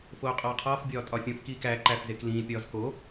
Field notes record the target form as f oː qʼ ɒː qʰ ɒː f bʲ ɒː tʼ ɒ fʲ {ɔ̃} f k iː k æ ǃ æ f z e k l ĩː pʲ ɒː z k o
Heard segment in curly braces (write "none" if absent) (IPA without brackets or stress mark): õ